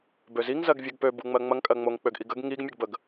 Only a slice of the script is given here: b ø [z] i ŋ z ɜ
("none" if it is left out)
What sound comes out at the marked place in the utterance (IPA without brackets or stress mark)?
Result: z